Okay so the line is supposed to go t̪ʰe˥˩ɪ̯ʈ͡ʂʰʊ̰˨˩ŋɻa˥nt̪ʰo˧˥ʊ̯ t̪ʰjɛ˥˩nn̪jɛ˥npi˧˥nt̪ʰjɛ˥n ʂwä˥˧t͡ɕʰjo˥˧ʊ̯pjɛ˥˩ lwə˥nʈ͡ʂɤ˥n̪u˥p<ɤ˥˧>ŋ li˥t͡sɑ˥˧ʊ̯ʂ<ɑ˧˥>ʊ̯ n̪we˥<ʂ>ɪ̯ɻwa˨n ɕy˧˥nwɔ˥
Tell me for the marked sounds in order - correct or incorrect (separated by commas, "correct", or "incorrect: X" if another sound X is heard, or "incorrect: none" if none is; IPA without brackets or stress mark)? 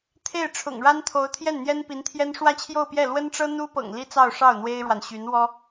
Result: incorrect: ɤ̰˨˩, incorrect: ɑ˥˩, incorrect: none